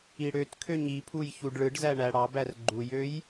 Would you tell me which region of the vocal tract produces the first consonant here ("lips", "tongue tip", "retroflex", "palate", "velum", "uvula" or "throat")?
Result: retroflex